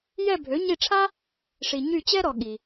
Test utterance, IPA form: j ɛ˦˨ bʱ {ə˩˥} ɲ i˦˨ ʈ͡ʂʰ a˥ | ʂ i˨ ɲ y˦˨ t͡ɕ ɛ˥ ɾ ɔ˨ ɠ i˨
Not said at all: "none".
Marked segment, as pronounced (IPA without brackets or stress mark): ø˩˥